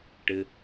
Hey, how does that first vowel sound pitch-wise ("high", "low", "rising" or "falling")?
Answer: high